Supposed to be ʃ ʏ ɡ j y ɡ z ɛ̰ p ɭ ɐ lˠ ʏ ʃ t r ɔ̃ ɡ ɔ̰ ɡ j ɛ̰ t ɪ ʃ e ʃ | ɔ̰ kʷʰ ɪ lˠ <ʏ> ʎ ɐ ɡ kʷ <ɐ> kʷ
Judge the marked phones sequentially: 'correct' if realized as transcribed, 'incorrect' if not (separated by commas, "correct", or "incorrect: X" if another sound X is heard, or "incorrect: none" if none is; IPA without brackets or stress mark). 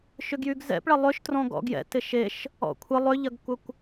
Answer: correct, correct